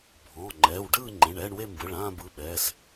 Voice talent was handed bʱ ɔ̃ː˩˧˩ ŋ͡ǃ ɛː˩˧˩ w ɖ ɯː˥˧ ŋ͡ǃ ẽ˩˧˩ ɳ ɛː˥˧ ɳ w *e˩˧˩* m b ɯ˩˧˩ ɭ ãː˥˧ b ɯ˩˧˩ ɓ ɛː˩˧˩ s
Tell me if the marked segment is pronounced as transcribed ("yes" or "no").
no